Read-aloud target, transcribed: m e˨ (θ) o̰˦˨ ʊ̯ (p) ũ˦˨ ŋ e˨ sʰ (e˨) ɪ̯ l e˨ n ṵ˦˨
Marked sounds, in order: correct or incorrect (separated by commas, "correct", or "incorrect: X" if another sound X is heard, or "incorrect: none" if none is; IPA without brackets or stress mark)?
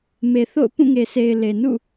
correct, correct, correct